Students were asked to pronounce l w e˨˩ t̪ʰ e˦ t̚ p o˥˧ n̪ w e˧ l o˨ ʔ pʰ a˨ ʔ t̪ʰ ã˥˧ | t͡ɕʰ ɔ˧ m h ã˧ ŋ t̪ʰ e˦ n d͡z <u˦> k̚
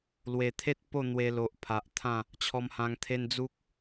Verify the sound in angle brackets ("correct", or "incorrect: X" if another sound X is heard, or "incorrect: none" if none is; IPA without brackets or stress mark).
correct